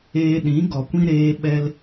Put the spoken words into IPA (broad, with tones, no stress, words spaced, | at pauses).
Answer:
eː˧ɗĩ˨˦ ɡɔ˨kʷĩ˦ ɾeː˧ɓɛ˧l